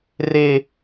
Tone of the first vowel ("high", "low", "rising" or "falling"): high